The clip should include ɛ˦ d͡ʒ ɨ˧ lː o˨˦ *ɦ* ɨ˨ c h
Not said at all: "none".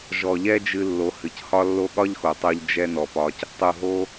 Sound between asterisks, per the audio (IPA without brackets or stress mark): h